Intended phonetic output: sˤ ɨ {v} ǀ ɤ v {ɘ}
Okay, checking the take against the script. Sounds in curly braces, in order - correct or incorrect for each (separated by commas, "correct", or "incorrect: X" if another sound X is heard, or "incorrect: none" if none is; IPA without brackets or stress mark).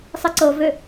incorrect: none, incorrect: ø